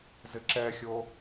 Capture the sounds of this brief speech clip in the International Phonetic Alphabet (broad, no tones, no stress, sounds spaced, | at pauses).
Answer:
z ɪ ǁ ɛ xʲ o